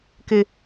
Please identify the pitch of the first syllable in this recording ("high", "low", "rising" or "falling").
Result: low